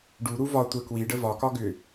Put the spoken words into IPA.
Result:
ɖ u ɾ u v ɒ tʷ ə k w i ɖ ə v ɒ k ɒ ɡ ʏ

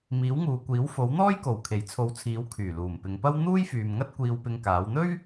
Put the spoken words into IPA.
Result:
m iː˨˥ w ŋ uː˨ kʷ iː˨˥ w f o˨˥ w n̪ ɔː˥ j k o˨˩ w kʰ e˨˩ j t͡sʰ o˨˧ w t͡sʰ iː˨˥ w kʰ yː˨˩ l uː˨˩ m p ɪ˨˧ ŋ p ɐ˥ w n̪ uː˥ j f yː˨ m ŋ ɐ˥ t̚ kʷ iː˧ w p ɪ˧ ŋ k aː˨˥ w n̪ ɵ˥ ɥ

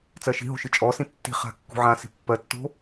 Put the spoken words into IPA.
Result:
t͡s ɜ ʃ i̤ ɦ o̤ ʃ ɨ t͡ʃʼ ɔ s ĩ tː i̤ χ a̤ kː ṳ ʕ ã s i̤ pː ɜ tː o̤

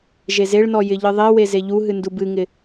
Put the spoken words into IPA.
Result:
ʒ e z e ɭ n ɔ j ɪ ʎ ɨ ðˤ e w e z e ʎ u ɦ ɨ n d u b ɨ ŋ ɪ

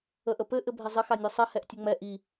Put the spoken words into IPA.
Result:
ə ʔ ə p ɘ ʔ ɘ bʱ ɪ zˤ ɘ x a nʲ ɛ sˤ ɘ h ɛ ʔ tʲ ɘ ŋ͡m ɛ ʔ i

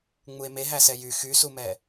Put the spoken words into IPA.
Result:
ŋ͡m u e̯ m e ɦ æ s ɛ j y x y s u m ɛ

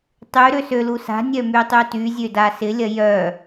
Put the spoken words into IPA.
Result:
tˤ y ɾ ø s ø l u s a̤ nʲ œ m y tˤ y t y zʲ ø d a s ɪ lʲ ɐ j œ

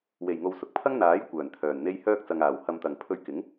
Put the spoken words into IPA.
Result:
w e˨˩ j ŋ o˨ w s ʊ˨ k̚ pʰ ɐ˥ ŋ n̪ aː˨˥ j kʷ œː˨˩ n t̪ʰ œː˨˩ n n̪ e˥ j h œː˥ k̚ t͡s ɐ˨ ŋ aː˨˩ w h ɐ˨ m t̪ ɐ˨˩ ŋ pʰ ɵ˧ ɥ k ɪ˨˥ ŋ

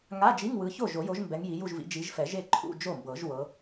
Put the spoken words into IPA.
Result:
ŋ a˧˥˧ d͡ʒ i˧˥˧ ŋ w ɯ˨˦ ç o˥˩ ʒ o˨˩˦ j o˨˦ ʒ m b ɛ˨˦ ŋ j i˨˦ j u˥˧ ʒ v ḭ˨˦ d͡ʒ i˨˦ ʒ f ɛ˨˩˦ ʒ e˥˩ ǃʰ ṵ˧˥˧ d͡ʒ o˥˩ m b ɤ˨˩˦ ʒ w ɤ˨˦

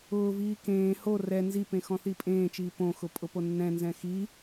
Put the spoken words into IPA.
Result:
ʊː v iː k ẽː h o r ɛ n z i p ẽ x ɔ̃ θ i pʼ ẽː t͡ʃ iː p õ x ʊ pʼ ʊ p o nː ɛ̃ n z ɛ̃ x i

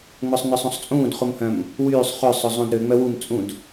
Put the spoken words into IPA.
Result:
ŋ͡m ɵ sˤ n œ sˤ ũ sˤ t͡sʼ ũː d χ u m h œ̃ m | w yː sˤ χ ø sˤ ɵ zˤ ũ d ɾ ø ŋ͡m œ w u m t͡sʼ ũ d

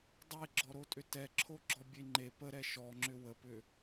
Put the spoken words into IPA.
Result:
dˤ e ɡ͡ǁ ɔ ɾ o tʼ ʏ t ɛ ǁʰ o ɡ͡ǁ ɔ bʲ e ŋ͡ǃ e p ə ɾ ɛ ʃ ɔ ŋ͡ǁ ʏ w ə p ʏ

